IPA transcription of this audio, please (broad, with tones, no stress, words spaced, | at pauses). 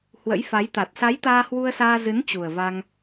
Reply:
hwə̰˧˥jfa˨˦jt̪a˨˩t̚ sa˨˦j t̪aː˧hwu˧ə̯saː˧zɨ˨˦n t͡ɕu˨˩ə̯va˧ŋ